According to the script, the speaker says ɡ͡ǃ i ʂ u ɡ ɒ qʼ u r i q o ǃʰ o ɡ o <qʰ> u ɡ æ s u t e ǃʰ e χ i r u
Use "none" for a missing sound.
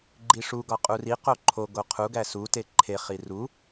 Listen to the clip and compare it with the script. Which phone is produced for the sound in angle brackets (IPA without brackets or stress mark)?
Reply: qʰ